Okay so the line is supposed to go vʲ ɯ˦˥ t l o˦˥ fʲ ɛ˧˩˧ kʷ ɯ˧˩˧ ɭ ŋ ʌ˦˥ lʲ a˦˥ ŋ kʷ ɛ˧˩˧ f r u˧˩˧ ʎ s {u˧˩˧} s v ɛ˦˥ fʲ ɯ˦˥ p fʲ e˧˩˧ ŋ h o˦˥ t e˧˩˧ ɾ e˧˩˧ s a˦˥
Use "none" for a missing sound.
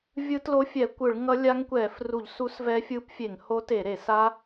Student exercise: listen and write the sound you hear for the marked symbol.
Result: u˦˥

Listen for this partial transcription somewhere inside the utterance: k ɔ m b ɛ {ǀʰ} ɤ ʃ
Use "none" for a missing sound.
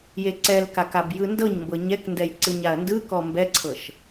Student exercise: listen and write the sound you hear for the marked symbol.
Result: ǀʰ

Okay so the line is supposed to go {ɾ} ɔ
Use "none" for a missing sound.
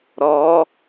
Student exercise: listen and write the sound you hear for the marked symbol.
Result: ɾ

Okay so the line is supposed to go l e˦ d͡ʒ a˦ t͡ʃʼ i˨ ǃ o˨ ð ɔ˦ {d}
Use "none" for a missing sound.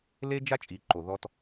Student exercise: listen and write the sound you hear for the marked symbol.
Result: t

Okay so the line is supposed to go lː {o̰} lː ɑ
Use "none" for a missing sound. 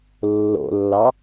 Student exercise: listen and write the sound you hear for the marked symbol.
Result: o̰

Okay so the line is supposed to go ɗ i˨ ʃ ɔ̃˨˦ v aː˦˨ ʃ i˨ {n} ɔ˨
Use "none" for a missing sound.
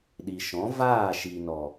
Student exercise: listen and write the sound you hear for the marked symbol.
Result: n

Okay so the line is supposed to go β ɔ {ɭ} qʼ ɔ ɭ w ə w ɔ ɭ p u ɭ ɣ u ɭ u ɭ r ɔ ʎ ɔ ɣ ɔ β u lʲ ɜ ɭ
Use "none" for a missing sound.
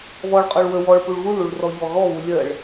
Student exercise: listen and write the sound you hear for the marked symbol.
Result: ɭ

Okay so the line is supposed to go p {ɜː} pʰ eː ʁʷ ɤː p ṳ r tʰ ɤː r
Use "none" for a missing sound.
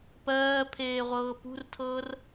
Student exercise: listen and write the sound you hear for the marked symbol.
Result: ɜː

